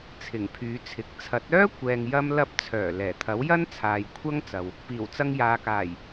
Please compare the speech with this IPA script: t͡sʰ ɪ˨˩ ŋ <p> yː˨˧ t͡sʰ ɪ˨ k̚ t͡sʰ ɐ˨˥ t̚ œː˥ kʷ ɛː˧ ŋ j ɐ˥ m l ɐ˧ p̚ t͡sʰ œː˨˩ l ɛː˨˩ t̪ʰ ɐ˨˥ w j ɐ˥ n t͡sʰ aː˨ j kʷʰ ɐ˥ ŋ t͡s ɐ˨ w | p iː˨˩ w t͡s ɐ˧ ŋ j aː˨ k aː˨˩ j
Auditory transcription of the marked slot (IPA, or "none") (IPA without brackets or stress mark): pʰ